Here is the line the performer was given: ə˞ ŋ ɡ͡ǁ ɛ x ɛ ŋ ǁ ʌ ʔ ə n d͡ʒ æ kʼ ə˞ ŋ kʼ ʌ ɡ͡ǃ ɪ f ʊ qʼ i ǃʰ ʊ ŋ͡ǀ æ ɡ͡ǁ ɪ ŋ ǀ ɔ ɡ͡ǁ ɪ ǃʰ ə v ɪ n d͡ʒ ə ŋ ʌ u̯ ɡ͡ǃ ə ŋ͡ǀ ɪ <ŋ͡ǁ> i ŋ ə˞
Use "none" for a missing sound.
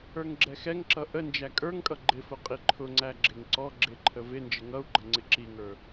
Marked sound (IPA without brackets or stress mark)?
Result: ǁ